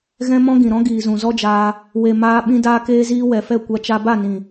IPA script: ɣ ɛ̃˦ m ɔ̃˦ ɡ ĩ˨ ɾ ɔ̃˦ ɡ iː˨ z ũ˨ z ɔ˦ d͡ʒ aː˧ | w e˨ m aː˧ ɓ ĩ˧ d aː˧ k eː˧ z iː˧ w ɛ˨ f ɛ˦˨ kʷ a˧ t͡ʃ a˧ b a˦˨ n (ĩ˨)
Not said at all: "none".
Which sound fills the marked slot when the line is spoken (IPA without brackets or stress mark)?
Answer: ĩ˨